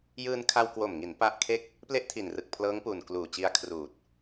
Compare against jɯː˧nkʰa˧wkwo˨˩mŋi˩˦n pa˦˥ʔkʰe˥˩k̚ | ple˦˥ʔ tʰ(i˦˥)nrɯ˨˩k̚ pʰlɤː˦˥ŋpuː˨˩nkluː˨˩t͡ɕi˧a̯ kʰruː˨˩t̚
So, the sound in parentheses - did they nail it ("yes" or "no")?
no